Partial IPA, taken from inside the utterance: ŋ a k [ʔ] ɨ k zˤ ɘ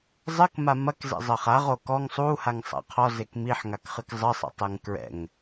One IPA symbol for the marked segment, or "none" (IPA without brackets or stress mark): χ